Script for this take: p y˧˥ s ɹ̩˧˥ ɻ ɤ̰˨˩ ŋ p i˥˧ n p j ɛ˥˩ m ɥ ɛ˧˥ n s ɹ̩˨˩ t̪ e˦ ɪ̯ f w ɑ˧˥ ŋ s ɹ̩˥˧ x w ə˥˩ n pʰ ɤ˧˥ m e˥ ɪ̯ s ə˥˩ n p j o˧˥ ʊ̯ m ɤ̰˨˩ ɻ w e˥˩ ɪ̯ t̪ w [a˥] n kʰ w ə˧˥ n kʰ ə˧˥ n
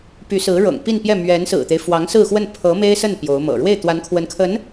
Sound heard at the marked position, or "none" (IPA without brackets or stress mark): a˧˥